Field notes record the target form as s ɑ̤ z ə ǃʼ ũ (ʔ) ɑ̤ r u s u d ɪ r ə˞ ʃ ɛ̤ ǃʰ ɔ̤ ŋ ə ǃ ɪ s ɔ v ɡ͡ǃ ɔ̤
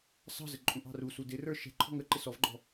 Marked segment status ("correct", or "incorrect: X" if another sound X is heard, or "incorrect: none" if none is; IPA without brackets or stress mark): correct